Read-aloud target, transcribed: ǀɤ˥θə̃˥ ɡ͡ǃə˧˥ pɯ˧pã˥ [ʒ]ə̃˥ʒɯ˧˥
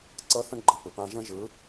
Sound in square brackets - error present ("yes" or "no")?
no